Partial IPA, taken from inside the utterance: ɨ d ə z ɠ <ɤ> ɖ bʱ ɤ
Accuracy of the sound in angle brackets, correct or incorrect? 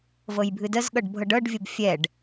correct